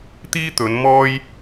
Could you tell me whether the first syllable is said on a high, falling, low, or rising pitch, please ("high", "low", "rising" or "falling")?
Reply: high